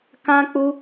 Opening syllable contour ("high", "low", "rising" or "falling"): high